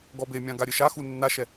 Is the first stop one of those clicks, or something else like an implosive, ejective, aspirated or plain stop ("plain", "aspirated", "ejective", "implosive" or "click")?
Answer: plain